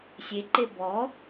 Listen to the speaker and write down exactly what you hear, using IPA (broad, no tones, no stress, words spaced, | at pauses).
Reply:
sʲeǃe bɔ